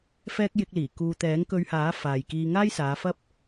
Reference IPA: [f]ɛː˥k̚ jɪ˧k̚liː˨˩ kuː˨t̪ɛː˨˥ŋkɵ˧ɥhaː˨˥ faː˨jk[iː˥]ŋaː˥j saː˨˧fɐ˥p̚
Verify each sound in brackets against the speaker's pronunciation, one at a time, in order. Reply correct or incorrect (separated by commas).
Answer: correct, incorrect